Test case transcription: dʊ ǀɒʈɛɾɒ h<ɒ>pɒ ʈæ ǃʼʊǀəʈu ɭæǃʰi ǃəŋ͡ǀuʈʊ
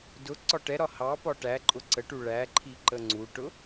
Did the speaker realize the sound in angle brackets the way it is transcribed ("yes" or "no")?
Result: no